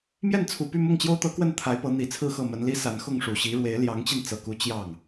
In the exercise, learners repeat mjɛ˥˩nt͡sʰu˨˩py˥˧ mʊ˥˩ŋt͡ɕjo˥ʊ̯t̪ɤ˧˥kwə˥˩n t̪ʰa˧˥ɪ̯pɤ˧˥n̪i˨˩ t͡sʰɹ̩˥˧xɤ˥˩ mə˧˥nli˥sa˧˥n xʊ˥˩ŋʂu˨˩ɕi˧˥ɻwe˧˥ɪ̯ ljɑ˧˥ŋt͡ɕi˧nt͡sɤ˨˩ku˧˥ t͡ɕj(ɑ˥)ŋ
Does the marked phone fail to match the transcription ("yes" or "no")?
yes